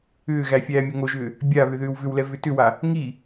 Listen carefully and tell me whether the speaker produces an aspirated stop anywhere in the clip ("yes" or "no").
no